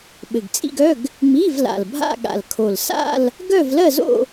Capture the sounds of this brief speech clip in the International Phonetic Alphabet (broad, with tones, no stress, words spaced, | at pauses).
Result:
ɓɘ˨˩ɡt͡sʼḭ˥˧ɡœ˧˥˧ɡ | mi˧˥˧v la̰˨˩lbʱa̰˥˧ ɠa̰˨˩lkʰo˨˩l sa̰˥˧l | ɡœ˥˧vlɜ˥˧zo̰˥˧